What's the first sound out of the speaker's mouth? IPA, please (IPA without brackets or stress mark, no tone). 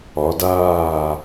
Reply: ɒ